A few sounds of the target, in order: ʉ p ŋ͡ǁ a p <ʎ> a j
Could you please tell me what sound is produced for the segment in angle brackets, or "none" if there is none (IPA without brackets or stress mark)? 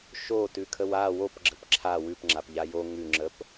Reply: ʎ